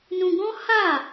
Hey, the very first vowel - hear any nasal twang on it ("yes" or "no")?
yes